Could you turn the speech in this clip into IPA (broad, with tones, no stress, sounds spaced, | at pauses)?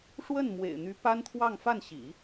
ʂ w ə˥˩ n m w ḛ˨˩ ɪ̯ n̪ y˧˥ p a˥ n t̪ʰ w ɑ˥˧ ŋ f a˥˩ n ɕ ḭ˨˩˦